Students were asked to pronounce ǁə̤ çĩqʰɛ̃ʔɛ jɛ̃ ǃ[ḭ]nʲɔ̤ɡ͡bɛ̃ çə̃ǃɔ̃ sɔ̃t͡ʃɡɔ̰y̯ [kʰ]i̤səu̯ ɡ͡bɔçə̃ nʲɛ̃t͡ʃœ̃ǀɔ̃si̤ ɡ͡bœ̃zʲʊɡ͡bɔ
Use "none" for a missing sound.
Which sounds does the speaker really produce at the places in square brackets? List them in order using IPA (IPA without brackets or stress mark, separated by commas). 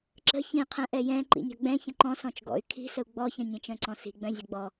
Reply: ḭ, kʰ